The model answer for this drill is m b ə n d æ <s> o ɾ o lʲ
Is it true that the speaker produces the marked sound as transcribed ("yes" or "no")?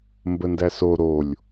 yes